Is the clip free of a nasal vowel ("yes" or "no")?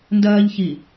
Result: yes